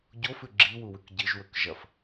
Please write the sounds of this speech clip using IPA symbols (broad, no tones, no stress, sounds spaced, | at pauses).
ɟ o f ʉ ɡ͡ǁ i w u w ʉ k ɟ ɨ ʒ w ɵ k ʒ ɐ f